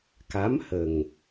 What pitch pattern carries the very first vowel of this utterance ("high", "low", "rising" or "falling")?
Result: rising